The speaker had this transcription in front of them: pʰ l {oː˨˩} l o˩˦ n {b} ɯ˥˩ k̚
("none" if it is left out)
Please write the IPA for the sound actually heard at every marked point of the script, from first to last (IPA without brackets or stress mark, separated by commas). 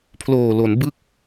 oː˨˩, b